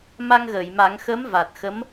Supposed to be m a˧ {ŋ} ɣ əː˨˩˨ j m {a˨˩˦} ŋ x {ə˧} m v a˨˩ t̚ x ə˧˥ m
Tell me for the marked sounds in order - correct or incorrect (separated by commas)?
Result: correct, correct, incorrect